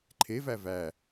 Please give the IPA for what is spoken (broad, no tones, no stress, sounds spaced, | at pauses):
ǃʰ e v æ v æ